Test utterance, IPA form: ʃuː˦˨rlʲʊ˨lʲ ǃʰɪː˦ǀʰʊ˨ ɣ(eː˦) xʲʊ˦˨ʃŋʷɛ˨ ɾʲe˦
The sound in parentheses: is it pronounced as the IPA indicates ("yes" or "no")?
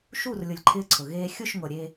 yes